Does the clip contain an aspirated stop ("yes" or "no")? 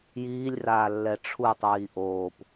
yes